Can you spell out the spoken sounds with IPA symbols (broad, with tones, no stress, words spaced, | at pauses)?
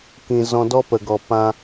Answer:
kĩ˨zɔ̃˧ dɔ˦pə˨ɡɔ˨ pã˧